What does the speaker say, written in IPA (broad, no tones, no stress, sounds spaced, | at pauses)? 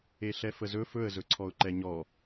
e ɬ ɛ f ə z ɵ f ɵ ə̯ z ɵ ǀʰ ɔ ʊ̯ ǃ ɛ ɲ ɔ